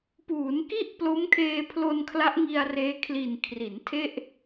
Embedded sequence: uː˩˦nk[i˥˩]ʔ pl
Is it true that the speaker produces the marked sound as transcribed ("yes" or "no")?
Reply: yes